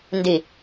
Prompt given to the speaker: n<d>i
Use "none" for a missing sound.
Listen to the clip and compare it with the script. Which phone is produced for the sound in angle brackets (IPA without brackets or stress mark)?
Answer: d